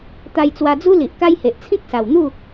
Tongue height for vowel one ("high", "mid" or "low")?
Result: low